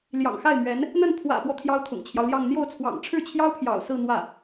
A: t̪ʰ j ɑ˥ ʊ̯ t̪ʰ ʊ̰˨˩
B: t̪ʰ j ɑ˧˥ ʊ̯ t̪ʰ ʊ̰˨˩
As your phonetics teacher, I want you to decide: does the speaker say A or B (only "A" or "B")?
A